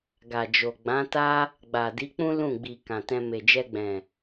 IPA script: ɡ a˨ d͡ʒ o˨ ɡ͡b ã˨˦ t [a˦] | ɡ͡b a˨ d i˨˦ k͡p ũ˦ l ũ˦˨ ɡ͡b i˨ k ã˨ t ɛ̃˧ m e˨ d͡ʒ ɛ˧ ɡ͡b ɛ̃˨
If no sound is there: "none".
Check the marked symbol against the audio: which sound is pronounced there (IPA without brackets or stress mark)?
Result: a˦